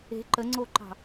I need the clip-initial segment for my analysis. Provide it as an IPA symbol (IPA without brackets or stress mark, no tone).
e̤